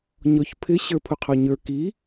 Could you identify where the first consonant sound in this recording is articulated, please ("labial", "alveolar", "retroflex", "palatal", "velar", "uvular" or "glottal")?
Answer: palatal